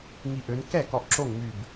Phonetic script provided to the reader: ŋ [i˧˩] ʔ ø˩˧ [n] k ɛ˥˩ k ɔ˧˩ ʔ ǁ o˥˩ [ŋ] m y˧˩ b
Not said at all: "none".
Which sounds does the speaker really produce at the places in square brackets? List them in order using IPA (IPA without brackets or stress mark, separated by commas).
i˧˩, n, ŋ